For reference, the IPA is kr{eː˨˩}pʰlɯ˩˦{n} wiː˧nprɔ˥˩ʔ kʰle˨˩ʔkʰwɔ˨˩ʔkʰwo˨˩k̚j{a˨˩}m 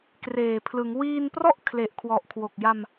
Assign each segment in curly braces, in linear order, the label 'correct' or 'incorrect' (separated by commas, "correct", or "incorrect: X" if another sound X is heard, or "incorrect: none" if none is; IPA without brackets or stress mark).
correct, incorrect: ŋ, incorrect: a˧